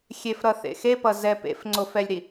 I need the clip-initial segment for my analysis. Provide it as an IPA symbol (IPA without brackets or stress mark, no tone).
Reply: xʲ